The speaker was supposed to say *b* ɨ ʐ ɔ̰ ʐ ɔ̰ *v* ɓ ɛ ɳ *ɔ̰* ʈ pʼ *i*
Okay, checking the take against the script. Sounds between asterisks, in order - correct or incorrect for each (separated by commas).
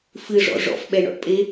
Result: incorrect, incorrect, correct, incorrect